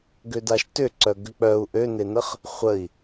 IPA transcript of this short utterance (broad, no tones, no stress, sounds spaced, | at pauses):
ɡ ø d a ʃ t ʏ ǀ œ ɡ ʏ k͡p œ u̯ ʔ ø n e n ə χ | χʷ ə i̯